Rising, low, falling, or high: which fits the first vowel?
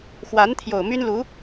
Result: rising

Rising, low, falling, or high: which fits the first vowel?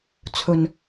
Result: low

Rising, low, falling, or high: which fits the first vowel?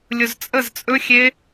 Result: low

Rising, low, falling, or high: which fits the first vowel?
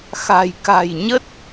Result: low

